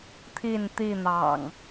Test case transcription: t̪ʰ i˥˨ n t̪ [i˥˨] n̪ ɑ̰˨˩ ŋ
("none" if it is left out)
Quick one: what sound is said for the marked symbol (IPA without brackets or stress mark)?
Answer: i˥˨